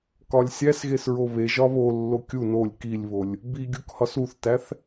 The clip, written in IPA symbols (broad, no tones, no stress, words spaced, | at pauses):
kɒlʲsʲæsɣes ɹoβeʒɒ βolːo kʲu nolʲ kilʲβolʲ | biɡʲuk hɒsuθtæθ